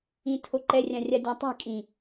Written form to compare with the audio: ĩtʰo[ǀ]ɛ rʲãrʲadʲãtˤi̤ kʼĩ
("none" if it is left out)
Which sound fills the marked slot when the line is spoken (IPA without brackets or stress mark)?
ǃ